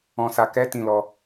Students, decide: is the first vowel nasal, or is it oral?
nasal